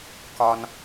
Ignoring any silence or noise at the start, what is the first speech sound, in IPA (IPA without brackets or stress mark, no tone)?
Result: k